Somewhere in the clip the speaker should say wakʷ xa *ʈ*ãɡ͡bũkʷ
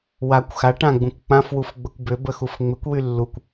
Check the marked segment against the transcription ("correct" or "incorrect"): correct